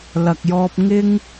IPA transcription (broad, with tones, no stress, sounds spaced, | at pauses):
l ɐ˨ k̚ j ɔː˧ p̚ ŋ ɪ˥ ŋ